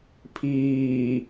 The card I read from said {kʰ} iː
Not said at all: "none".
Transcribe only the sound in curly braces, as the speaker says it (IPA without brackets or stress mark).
pʰ